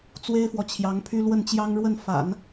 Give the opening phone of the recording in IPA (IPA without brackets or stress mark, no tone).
t͡s